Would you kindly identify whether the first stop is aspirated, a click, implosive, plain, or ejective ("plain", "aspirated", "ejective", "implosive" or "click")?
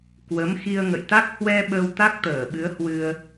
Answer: plain